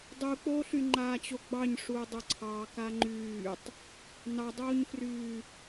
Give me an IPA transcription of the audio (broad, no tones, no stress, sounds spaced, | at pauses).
dˤ u k͡p oː ɬ y ŋ͡ǃ aː t͡ɕ o ɡ͡b ɑ ɲ ʂ uː dˤ ʊ ǀʰ ɑː k a ŋ͡ǃ yː tˤ | n ɑ dˤ oː ɲ f r yː